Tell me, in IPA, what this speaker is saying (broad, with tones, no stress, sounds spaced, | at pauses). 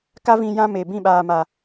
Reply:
k a˦ v ĩ˧ j ã˦ m e˨ b ĩ˦˨ ɓ aː˨ m a˨